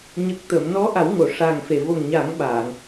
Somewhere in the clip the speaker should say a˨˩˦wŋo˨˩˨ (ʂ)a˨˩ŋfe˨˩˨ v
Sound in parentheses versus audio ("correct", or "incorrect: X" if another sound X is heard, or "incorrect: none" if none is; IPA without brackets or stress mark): correct